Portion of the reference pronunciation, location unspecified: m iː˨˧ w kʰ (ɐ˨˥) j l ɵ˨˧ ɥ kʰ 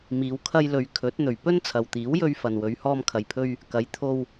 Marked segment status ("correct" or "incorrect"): incorrect